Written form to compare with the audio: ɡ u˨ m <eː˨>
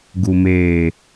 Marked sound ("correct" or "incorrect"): correct